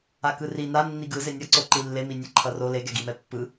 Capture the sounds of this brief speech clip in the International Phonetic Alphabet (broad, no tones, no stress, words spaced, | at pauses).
akɯri na nːiɡɯ zenʲʌǀo ǃilːemi nʲeǃʰʌro leɡɛɡimɛ pːɯ